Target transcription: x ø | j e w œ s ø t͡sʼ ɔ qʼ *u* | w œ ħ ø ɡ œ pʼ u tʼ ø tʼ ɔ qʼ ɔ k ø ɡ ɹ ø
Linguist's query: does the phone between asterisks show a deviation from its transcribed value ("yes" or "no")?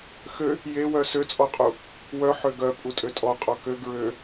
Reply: no